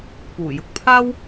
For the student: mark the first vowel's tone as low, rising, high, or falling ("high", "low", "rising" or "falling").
low